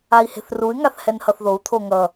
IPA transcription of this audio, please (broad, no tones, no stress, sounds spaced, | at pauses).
a i̯ h e̤ θ r u y̯ ŋ a θ h ɛ n h ʌ θ ð o u̯ t̪ʰ o ŋ ʌ